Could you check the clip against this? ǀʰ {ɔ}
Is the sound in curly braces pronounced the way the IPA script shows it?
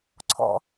no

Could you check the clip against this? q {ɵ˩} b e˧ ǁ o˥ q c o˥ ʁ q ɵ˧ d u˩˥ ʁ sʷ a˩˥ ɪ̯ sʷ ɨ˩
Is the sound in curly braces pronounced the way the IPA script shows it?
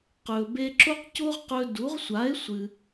yes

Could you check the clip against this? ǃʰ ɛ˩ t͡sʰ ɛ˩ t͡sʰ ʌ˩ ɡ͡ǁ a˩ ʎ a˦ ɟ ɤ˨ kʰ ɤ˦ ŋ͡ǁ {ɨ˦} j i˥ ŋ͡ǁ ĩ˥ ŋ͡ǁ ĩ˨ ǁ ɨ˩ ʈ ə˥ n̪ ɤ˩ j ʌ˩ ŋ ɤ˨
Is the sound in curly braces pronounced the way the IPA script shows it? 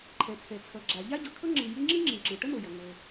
no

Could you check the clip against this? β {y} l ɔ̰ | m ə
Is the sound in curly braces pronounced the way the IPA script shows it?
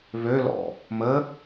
no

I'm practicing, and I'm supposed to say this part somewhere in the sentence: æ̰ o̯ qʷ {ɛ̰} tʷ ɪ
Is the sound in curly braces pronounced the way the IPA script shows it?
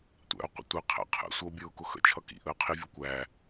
no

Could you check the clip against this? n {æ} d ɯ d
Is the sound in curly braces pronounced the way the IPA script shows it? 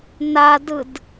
no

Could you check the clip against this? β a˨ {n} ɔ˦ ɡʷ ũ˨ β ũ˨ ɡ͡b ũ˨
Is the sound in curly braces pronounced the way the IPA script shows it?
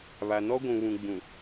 yes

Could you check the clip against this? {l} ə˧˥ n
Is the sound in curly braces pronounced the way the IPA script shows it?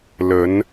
yes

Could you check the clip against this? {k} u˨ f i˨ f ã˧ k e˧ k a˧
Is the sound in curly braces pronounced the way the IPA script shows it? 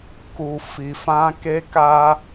yes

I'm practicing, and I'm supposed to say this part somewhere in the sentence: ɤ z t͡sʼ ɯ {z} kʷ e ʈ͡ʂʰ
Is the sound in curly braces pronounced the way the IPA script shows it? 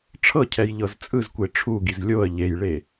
yes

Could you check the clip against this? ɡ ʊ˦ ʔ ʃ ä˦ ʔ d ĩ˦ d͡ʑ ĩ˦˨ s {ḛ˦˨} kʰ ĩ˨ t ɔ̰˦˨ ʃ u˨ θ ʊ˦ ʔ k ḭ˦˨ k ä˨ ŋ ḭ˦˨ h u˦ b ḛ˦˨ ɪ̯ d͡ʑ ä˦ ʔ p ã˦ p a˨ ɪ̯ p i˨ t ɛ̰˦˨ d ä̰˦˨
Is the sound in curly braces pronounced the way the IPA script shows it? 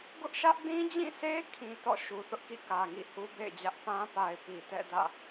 no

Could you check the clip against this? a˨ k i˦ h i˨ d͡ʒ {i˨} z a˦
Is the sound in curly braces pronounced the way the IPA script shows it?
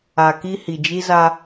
no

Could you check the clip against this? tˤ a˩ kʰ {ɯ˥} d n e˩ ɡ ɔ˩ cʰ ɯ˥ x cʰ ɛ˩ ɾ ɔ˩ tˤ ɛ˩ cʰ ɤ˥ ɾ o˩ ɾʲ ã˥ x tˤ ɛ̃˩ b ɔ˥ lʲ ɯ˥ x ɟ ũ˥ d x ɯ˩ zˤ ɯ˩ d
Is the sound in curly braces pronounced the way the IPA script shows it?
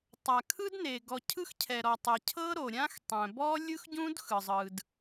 yes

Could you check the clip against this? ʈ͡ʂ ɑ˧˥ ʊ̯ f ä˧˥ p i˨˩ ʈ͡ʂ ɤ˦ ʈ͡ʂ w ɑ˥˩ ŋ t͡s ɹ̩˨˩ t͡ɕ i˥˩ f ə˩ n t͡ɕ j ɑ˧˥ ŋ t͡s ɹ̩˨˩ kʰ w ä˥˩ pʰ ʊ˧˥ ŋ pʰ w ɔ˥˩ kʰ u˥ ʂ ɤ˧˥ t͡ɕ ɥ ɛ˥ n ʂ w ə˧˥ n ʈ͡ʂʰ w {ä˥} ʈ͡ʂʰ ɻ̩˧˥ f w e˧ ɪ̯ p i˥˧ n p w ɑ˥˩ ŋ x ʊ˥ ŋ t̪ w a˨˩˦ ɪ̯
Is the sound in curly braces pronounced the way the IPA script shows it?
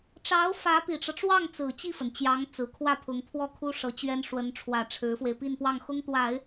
no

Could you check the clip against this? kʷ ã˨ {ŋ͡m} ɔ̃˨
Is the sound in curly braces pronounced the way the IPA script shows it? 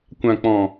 no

